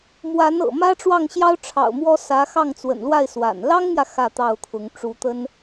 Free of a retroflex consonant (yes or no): no